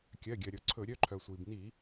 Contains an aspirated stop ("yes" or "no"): yes